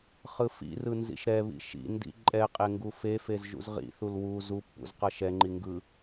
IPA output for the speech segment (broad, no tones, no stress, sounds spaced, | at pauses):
χ ɯ f ḭ r ɯ n z ḭ ʃ ɾ ɛ β ḭ ʃ ḭ n d ḭ ǃʼ ɛ qʼ e ŋ ɡ u f e f e z ʒ ṵ z ʁ ḭ θ u l w u z u pː ṵ z q ʌ ʃ ɛ ŋ͡ǃ i ŋ ɡ ɯ